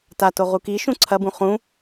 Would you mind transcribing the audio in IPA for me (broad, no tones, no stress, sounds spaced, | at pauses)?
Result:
t a t o ʁ u k i ʃ ũ ǀʰ ɐ b ũ χ ũ